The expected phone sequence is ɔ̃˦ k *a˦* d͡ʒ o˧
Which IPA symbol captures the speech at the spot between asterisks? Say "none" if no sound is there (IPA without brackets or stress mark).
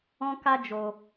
a˦